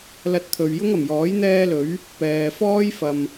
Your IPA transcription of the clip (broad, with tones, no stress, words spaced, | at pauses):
lɐ˧t̚t̪ʰɵ˨ɥ jʊ˥ŋɐ˨˩mjɔː˨˥j n̪ɛː˥lɵ˨˥ɥ | pɛː˨fɔː˥j fɐ˨m